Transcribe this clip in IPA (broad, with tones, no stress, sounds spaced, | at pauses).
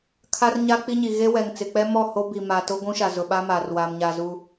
kʰ a˦ r ɲ a˦ k͡p i˦ ɲ i˨ ɣ e˦ w ɛ˨ ŋ t͡s ɪ˨ k͡p ɛ˦ m ɔ˦˨ h o˦ b i˨ m a˨ t o˦ ɡʷ ũ˦ ʃ a˨ z ʊ˨ ɓ a˦ m a˨ r w aː˨ m ɲ a˨ z u˨